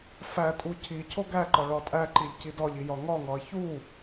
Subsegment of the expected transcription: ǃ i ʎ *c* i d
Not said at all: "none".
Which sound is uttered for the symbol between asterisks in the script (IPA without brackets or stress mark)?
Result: c